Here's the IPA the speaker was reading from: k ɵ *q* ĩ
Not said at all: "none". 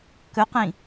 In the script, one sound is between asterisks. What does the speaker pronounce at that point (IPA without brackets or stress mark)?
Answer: q